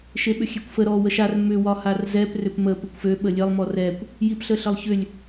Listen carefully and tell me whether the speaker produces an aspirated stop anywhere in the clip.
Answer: no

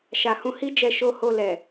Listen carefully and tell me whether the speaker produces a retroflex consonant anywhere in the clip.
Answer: no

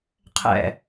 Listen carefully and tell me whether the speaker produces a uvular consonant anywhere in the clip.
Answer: yes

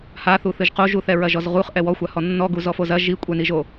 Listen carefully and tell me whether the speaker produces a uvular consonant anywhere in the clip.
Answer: yes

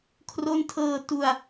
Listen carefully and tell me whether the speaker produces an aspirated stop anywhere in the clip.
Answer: yes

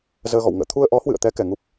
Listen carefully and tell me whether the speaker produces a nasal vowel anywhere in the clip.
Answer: no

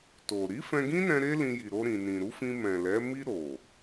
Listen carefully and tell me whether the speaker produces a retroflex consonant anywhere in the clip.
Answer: no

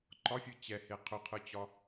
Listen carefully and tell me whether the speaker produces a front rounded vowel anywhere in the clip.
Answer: yes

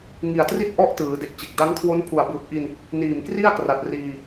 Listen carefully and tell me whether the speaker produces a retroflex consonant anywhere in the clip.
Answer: no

